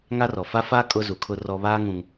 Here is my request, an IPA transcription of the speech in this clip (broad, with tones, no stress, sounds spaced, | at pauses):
ŋ a˦ r ɔ˨ f a˦ f aː˦ kʼ ʊ˦ z u˨ kʰ ʊ˦ r ɔ˦ β aː˦ ŋ ũ˦ ŋ